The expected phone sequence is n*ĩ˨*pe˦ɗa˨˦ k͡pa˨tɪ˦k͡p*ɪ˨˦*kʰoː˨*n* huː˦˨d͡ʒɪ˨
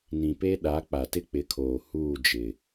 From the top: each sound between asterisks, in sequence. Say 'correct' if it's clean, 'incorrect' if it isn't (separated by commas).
correct, correct, incorrect